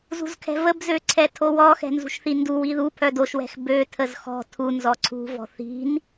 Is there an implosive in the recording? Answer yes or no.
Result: no